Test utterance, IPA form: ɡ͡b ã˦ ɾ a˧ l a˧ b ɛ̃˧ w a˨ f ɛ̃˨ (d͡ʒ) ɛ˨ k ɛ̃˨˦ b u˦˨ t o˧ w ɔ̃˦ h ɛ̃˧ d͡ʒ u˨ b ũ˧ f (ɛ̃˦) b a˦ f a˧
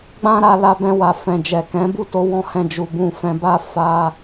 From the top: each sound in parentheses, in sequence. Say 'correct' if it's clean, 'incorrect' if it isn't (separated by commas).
correct, incorrect